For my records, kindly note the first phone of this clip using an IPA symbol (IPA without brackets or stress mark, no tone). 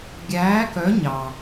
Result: ɡʲ